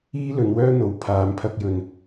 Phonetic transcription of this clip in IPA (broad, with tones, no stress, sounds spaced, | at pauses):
iː˥ l ɵ˨˧ n w œː˥ n̪ o˨ w pʰ aː˨ m pʰ ɐ˧ k̚ j ɵ˨ n